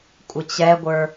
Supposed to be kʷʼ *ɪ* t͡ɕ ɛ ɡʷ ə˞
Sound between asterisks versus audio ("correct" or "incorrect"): correct